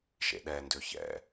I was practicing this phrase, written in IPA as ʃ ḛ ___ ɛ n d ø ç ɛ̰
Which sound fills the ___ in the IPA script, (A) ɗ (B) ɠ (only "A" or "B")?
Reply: A